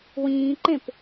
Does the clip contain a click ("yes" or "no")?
yes